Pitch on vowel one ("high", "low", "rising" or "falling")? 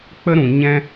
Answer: high